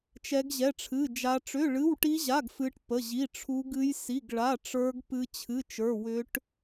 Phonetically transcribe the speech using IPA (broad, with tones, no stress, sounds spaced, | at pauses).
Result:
t͡ʃ ɛ˦˥ ɡ ʑ ɛ˧˥˧ ʈ͡ʂʰ ɨ˧˥˧ d͡ʒ a˦˥ ʈ͡ʂ ʏ˧˥˧ ɭ ɨ˧˥˧ w ʈ i˦˥ ʑ a˧˥˧ ɡ f ɨ˦˥ ʈ p ə˧˥˧ ʑ i˧˥˧ ʈ͡ʂʰ u˦˥ ɡ ɨ˦˥ j s i˧˥˧ ɡ ɭ a˧˥˧ ʈ͡ʂ ə˞˦˥ ɡ p ɨ˦˥ t͡ɕʰ ɨ˧˥˧ t͡ʃ ə˞˧˥˧ w ʏ˦˥ ʈ